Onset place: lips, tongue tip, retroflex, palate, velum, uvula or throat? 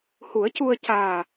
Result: throat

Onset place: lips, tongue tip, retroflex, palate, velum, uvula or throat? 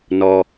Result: tongue tip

